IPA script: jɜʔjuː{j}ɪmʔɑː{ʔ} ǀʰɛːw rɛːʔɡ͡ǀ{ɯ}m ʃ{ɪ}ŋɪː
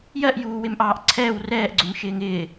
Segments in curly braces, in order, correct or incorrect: incorrect: w, correct, incorrect: ʊ, incorrect: ɪː

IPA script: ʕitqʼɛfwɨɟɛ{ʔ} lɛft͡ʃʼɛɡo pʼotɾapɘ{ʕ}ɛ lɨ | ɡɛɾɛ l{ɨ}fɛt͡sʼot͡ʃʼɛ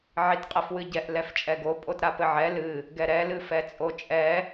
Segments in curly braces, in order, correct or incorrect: correct, correct, correct

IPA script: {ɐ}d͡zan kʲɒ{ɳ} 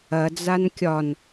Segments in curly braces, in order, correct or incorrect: correct, incorrect: n

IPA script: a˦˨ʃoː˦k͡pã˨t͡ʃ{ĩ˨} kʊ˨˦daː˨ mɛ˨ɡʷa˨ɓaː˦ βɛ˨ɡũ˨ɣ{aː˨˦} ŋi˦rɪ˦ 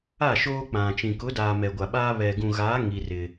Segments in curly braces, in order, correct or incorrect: correct, correct

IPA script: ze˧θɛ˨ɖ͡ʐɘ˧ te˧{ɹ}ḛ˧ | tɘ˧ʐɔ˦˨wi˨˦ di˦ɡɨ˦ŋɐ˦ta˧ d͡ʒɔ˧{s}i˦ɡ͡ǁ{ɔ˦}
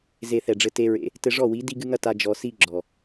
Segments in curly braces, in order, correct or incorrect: correct, correct, incorrect: ɔ˨

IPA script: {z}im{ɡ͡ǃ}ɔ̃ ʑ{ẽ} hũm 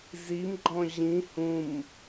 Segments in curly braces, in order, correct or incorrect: correct, correct, incorrect: ĩ

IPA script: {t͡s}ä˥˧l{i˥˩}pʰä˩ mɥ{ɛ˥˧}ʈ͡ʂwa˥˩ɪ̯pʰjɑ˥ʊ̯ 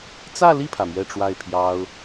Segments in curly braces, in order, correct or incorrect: correct, correct, correct

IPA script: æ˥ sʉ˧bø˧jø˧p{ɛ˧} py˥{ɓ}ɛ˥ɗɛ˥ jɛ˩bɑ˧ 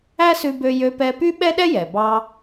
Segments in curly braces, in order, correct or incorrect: correct, correct

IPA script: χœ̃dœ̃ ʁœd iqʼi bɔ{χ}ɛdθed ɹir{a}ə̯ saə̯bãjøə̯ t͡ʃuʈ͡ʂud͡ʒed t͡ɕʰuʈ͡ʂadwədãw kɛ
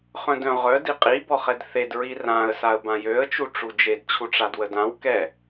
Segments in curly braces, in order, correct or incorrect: correct, incorrect: ã

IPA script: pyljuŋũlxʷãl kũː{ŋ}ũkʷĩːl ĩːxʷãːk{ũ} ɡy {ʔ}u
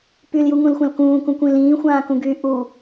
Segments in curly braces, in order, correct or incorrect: incorrect: k, correct, correct

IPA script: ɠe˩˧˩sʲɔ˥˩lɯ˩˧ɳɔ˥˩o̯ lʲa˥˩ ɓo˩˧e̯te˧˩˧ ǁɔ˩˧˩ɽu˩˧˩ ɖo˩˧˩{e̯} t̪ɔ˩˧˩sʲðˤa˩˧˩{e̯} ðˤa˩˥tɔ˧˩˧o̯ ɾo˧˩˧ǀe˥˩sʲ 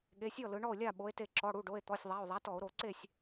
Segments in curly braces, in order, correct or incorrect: correct, incorrect: o̯

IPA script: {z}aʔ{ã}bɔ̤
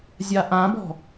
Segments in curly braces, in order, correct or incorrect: incorrect: zʲ, correct

